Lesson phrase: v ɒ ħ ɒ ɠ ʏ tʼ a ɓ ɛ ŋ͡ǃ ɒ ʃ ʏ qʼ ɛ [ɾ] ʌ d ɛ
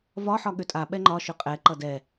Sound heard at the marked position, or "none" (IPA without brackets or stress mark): ǃ